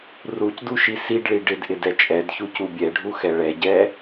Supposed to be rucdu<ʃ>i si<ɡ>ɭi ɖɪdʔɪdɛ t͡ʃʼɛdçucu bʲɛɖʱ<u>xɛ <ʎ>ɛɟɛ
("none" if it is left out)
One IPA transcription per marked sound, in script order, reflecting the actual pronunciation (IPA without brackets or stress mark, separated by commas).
ʃ, ɖ, u, ɭ